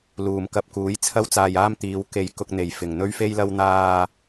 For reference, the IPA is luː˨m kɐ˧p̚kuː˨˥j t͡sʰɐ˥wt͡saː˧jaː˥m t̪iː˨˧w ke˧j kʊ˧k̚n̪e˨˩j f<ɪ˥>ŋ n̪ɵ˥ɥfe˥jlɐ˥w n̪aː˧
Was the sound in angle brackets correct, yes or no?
no